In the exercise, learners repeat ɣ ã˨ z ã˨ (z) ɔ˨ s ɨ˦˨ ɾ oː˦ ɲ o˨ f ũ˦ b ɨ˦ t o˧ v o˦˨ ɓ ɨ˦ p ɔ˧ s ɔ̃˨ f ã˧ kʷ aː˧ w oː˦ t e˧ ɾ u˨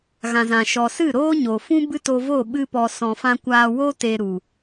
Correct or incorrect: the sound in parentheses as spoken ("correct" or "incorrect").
incorrect